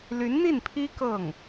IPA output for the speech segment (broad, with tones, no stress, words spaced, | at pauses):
ly˧˥nn̪i˥˩npʰi˥ kɤ˥˩ŋ